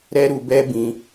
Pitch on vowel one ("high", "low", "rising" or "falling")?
high